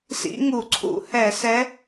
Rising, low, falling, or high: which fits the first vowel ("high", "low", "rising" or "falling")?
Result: rising